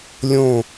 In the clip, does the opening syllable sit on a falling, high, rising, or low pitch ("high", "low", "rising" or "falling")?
falling